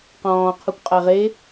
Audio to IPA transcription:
q ɔ̃ː qʰ u kʷ qʼ a ʁ e

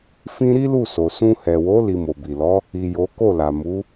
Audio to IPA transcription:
f ĩ˦ ɾ i˦ l u˦˨ s o˨ s ũ˧ h ɛ˨ w o˨˦ l i˧ m o˨ b i˨ l ɔ˨˦ | i˨ j o˨˦ k o˦˨ l a˨ m u˨˦

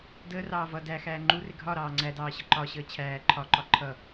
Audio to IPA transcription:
d əː r ɑː v ʌ d æ x æː ŋ͡ǃ u r ɪ ɡʱ ɒ ɾ ɑː ŋ͡ǀ æ d ɑː ɕ ə ǃ ɒ ɕ əː t͡ɕʰ æː ǃʰ ɒ ǃ ɒ ǃʰ ʌ

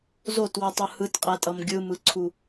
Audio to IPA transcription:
z o t w ɯ tˤ ɯ h ɯ t qʼ ɛ tʼ ʌ m ɡʲ ɯ m ɯ ǀʰ u

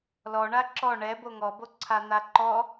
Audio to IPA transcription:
l ɔ ɳ a ǁ ɔ ɳ ɛ b o ŋ ɔ b o ǀʰ a n̪ a ǃ ɔ

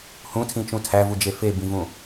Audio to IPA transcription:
h ũ tʰ ĩ t͡ʃ ũ tʰ æ v u d͡ʒ e f e b ĩ v ũ

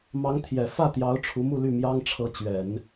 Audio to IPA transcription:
m ɑ˧˥ ŋ t̪ʰ j ɛ˨˩ f ä˥˩ t̪ j ɑ˧˥ ʊ̯ ʈ͡ʂʰ u˧˥ m u˥˧ l y˥˩ m j ɑ˥ ŋ ʈ͡ʂʰ ɤ˧˥ t͡ɕ ɥ ɛ˨˩˦ n

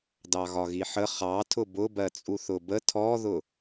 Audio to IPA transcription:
d ɑ ɣ ɒ ɣ i ħ ə χ ɑ tʰ ʊ b ʊ b ɜ t͡sʼ u θ ʊ b ə tʰ ɔ ð ʊ

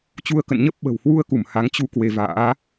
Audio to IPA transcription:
t͡ɕ u˧ ə̯ k ə̰˧˨ n ɲ ə˦˥ p̚ ɓ ə̤˨˩ w h w u˧ ə̯ k u˧˩ m h a˨˦ ŋ t͡ɕ u˧ k w e˧ v a̰ː˧˥

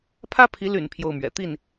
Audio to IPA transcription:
pʰ ä˥ pʰ i˧˥ l y̰˨˩ n pʰ j o˥˩ ʊ̯ m ɥ ɛ̰˨˩ t̪ i˥˩ n

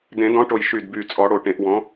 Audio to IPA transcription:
d ẽ˨˩˦ d ɔ̃˨˥ ʈ o˨˩ j ʃ y˨˩ d b y˨˩ t͡sʼ ɔ˨˩˦ ɽ o˨˩ ʈ ẽ˨˩˦ ʔ w ɔ̃˨˥

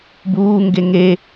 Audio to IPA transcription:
b uː ŋ ɡ e ŋ e

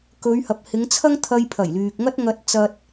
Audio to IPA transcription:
k ɵ˨˧ ɥ h ɐ˨ p̚ h ɪ˨˧ ŋ t͡sʰ ɐ˥ ŋ t̪ʰ ɐ˧ j pʰ ɐ˨˩ j l yː˨ k̚ ŋ ɐ˥ t̚ ŋ ɐ˧ t̚ t͡s ɐ˧ t̚

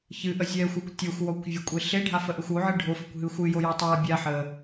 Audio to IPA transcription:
ç ɨ ʔ ə zʲ ɛ xʷ e kʷ tʲ e xʷ w ɔ kʷ vʲ ə kʷʼ e ɬ e ɖʱ a f ə ʔ e xʷ o ʕ ɨ ɖʱ o f ə kʷ ɦ ɨ xʷ ɨ j o j ɔ tˤ a bʲ a ħ ə

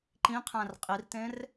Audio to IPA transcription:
ǃ ĩ qʰ æ̃ r qʼ i r t ẽ r

